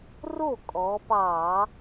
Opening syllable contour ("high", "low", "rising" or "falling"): falling